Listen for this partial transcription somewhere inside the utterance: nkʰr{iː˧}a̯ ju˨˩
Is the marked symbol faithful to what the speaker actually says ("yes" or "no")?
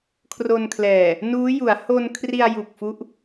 no